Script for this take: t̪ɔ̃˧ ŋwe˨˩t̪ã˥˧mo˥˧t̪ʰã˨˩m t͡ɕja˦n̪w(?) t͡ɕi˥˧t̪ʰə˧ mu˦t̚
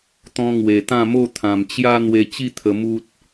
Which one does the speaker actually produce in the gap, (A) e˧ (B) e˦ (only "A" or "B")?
A